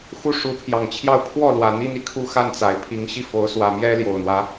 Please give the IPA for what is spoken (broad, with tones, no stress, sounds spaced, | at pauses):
x u˥˩ ʂ u˧˥ pʰ j ɑ˨˩ ŋ t͡ɕʰ j ɑ˥˧ ʊ̯ pʰ w ɔ˥˩ l w ä˨˩ n̪ i˥ n̪ i˥˩ kʰ u˥ x a˥˩ n t͡s a˨˩ ɪ̯ pʰ i˧˥ ŋ ɕ i˥ f o˧˥ ʊ̯ s w ä˨˩ m j ɛ˥ l j o˨˩ ʊ̯ n̪ w ä˦